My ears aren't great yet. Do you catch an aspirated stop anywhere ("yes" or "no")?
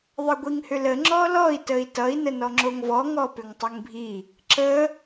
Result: no